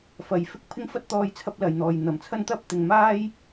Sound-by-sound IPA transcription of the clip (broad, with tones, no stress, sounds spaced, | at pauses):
f ɐ˨ j f ɪ˥ k̚ pʰ ɪ˥ ŋ f ɐ˥ t̚ t̪ ɔː˧ j t͡sʰ ɐ˥ p̚ l ɐ˨ j n̪ ɔː˨ j n̪ ɐ˨˩ m t͡sʰ ɐ˥ n t̪ ɐ˥ p̚ t̪ ɪ˨ ŋ m aː˥ j